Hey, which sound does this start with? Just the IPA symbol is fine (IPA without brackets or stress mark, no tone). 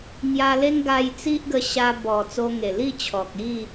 ŋ